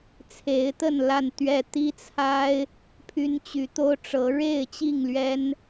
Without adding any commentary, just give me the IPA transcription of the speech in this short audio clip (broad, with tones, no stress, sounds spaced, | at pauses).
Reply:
t͡sʰ e˨˦ ɪ̯ t̪ ə˥˨ n l a˥˨ n t̪ ɥ ɛ˥˨ t̪ i˦ t͡sʰ a˦ ɪ̯ | pʰ y˦ n t͡ɕ y˨˦ t̪ o˦ ʊ̯ ʈ͡ʂ ɤ˨˦ ɻ e˥˨ ɪ̯ t͡ɕ i˥˨ ŋ l ɥ ɛ˦ n